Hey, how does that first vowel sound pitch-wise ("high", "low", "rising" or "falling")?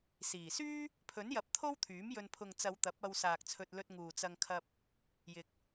low